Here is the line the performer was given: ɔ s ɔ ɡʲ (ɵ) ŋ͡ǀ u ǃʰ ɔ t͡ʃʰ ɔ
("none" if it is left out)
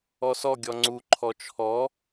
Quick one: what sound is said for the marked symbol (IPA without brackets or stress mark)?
ɔ